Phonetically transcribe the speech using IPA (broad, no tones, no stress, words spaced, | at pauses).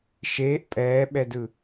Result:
ʃeːʔ pʼɛːɓɛdɯ